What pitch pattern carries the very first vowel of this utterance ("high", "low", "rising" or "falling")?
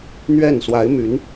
falling